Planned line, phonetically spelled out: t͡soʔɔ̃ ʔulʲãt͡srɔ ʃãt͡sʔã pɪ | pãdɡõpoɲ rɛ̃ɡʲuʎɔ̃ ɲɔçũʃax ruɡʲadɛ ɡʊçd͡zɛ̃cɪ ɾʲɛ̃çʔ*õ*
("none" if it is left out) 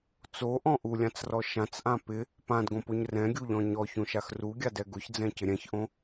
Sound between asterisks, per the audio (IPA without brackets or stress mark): õ